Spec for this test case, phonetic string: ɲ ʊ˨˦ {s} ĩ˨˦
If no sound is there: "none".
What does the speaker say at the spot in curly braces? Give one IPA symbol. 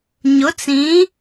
t͡s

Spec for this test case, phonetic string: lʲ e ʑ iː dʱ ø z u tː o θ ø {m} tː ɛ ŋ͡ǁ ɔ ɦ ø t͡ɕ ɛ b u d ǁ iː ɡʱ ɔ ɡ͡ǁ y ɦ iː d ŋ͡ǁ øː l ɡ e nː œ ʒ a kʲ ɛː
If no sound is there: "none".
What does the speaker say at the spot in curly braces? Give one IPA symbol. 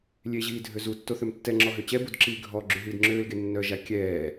m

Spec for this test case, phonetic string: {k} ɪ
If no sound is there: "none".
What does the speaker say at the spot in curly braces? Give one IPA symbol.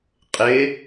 qʼ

